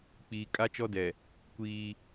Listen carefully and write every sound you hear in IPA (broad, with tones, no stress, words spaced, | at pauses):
k͡piː˨kʼa˦ t͡ʃɔ˦dɛ˨ | kʷiː˦